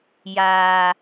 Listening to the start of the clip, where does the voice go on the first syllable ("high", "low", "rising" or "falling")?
low